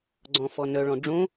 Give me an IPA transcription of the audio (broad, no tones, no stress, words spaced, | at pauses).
ɡ͡ǀɔ̃fɔnœɭɔ̃ ɖ͡ʐõ